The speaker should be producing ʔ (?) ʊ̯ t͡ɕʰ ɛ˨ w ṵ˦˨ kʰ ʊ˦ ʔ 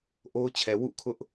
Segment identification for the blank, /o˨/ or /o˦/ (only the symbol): o˦